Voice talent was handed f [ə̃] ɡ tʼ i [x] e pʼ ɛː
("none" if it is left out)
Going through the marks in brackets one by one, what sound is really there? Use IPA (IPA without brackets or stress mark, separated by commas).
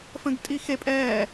ə̃, x